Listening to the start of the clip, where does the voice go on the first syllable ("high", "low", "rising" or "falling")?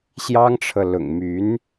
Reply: high